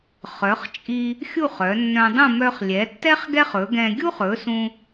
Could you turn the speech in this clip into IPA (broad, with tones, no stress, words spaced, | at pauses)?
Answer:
χœ˩˧χt͡ʃʼi˧ | xʲu˥˧χœ˩˧nːœ̃˧dˤũ˥˧ mœ˧χlʲɛ˩˧tːɛ˥χ ɡɛ˥χɵ˩˧ɡɛ̃˧ ɡʲu˥χɵ˩˧ sũ˧